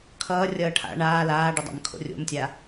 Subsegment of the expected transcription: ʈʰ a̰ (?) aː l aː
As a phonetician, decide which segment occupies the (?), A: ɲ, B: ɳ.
B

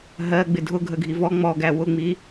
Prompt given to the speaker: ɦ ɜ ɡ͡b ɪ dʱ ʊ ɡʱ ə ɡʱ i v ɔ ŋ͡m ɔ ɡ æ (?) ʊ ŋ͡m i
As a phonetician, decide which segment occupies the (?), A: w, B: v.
A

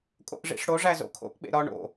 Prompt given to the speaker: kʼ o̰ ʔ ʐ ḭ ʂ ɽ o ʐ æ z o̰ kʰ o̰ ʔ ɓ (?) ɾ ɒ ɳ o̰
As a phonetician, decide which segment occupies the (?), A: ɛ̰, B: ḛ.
B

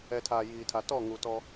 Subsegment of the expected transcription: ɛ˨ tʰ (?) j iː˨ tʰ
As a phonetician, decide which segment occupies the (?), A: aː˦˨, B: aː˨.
B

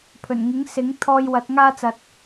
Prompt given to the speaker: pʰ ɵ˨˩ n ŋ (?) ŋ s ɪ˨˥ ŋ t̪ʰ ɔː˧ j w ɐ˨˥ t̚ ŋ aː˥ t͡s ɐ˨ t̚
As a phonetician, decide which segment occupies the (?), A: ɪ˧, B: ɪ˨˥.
B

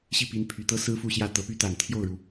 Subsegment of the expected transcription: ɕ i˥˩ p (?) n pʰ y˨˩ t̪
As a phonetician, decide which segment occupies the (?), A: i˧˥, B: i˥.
A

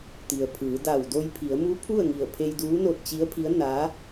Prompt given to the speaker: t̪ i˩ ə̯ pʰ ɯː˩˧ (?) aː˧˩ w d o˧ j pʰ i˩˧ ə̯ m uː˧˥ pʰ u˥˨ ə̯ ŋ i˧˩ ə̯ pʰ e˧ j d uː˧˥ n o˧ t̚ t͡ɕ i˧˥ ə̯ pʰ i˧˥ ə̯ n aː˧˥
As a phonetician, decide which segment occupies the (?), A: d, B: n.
A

